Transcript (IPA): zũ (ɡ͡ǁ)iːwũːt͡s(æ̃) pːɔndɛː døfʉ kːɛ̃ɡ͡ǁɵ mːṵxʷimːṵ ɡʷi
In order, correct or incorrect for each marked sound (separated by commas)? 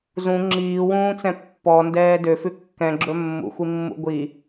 incorrect, incorrect